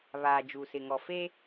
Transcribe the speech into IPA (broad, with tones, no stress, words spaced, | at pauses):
βaː˨d͡ʒu˨sɪ˨ ŋɔ˨feː˦